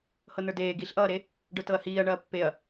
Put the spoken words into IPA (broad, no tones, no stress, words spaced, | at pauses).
hɤnə˞deː ɡiɬʔʌːɾe | ɖə˞tɤɐ̯hiːɐ̯ ɳɐːpːeɐ̯